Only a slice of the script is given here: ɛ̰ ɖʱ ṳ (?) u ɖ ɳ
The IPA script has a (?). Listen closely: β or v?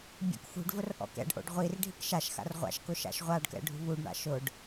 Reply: β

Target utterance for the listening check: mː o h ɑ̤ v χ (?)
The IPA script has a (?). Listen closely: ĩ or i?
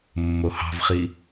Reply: i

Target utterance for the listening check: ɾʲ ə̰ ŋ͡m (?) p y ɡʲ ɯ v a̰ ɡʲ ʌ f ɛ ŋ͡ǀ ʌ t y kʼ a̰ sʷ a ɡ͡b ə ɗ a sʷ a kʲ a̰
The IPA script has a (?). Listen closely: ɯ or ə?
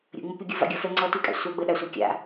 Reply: ə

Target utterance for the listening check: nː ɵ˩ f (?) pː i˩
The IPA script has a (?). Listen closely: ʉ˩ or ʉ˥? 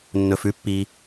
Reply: ʉ˥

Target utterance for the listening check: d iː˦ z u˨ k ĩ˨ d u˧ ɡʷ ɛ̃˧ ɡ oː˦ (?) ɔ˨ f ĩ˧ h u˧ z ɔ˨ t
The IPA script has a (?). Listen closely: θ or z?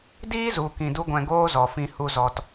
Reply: z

